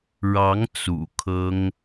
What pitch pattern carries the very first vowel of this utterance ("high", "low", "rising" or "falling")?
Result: rising